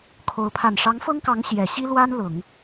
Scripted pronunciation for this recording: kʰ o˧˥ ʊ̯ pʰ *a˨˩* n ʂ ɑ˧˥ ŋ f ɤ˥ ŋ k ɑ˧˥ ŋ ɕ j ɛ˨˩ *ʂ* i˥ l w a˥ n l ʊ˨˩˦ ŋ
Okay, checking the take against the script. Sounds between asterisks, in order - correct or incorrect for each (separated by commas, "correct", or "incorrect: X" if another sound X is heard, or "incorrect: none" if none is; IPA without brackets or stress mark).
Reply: correct, incorrect: ɕ